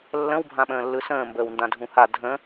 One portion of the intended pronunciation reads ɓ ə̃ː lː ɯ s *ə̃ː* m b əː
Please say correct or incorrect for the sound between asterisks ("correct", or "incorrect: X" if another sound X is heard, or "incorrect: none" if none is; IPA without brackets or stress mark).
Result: correct